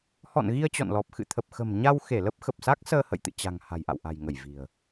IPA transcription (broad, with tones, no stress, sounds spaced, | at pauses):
h ɔ̰˧˨ n ɣ i˧ ə̯ t͡ɕ ɔ̰˧˨ n l ɔ˨˩ p̚ x ɨ̰˧˨ t̪ʰ ə˨˩ p̚ x ə̤˨˩ m ɲ a˧ w x e˧˩ l ə˦˥ p̚ x ə˨˩ p̚ s a˦˥ k̚ s əː˧ h ə̰˧˨ j t̪ ɨ̰˧˨ t͡ɕ a̤˨˩ ŋ h a̤˨˩ j ʔ a̰˧˨ w ʔ a̤˨˩ j ŋ ə˧˩ j v i̤˨˩ ə̯